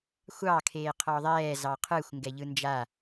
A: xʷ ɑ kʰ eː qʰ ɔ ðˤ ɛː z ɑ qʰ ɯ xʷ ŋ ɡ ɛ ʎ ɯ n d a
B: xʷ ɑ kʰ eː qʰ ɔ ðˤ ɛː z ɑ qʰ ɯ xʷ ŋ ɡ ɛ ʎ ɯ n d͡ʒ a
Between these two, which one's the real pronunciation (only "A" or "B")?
B